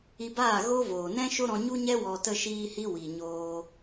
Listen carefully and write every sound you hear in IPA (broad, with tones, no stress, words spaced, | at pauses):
i˧baː˦˨ ɣo˦voː˨ nɛ̃˦ ʃo˦ɾɔ̃˧ɲu˦ɲɛ˦ wɔ˨tə˧ʃiː˧hi˧ wi˨ɲoː˧